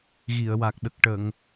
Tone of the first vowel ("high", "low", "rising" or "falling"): low